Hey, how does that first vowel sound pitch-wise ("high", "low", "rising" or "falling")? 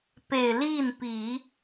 low